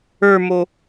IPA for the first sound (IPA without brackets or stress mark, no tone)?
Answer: ə˞